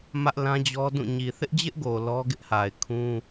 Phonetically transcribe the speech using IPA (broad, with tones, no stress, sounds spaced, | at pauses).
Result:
m ä˦ ʔ l ã˦ d͡ʑ ɔ˦ d ũ˦˨ ɲ i˨ θ ɪ˦ ʔ d͡ʑ ɪ˦ ʔ ɡ o˨ l ɔ˦ ɡ ɪ˦ ʔ h a˨ ɪ̯ kʰ ũ˦